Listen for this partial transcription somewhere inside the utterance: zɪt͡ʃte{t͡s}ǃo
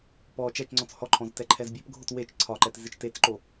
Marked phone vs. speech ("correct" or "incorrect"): correct